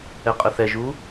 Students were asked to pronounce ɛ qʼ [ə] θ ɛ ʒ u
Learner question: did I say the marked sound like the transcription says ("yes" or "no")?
yes